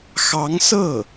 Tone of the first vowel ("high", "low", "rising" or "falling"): rising